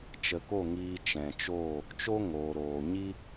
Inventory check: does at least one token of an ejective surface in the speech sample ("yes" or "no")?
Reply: no